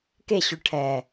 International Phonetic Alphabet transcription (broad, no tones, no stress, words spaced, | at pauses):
keɕʉʈʰɛː